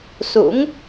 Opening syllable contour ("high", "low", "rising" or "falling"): rising